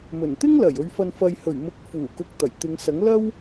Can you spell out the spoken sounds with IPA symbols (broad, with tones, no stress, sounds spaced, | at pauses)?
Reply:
m ɵ˨˩ n t̪ ɪ˥ ŋ l ɐ˨˩ j ɵ˨ ɥ f ɐ˨ n f ɐ˨ j h ɵ˨˩ ɥ m ʊ˨˥ k̚ f uː˨˩ k ʊ˨ k̚ t̪ ɐ˨˩ j t̪ ɪ˨˧ ŋ s ɐ˨˥ ŋ l ɐ˥ w